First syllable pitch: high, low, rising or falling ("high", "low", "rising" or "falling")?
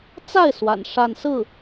falling